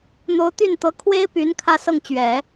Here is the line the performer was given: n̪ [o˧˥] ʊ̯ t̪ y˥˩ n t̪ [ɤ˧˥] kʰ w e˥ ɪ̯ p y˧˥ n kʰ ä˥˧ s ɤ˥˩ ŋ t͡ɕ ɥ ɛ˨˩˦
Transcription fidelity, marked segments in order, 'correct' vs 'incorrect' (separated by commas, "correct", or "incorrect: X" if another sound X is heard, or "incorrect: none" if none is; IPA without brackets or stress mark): correct, correct